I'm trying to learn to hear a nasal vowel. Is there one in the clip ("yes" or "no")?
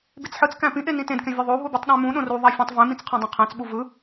yes